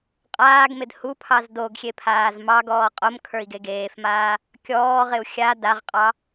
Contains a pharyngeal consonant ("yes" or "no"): no